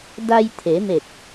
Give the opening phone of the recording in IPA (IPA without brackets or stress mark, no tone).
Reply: d